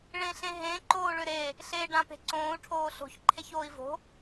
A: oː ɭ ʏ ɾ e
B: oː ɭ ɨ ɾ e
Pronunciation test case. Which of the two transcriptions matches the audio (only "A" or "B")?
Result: A